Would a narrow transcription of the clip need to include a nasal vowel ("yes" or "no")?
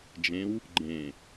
yes